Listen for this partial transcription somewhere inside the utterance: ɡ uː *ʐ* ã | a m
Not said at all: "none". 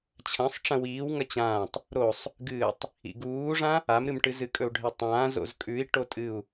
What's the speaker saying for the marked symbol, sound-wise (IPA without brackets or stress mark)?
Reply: ʐ